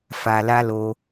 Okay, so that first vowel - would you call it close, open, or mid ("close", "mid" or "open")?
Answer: open